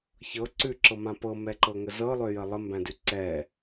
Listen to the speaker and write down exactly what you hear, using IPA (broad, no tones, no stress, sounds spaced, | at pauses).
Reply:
ç ɤ ǀ ʉ ǁ ɤ m ã p ɤ m ɛ ǃ ɤ ŋ ə z ɤ lˠ ø j ə lˠ ə m b æ̃ d ʉ ǀ ɛ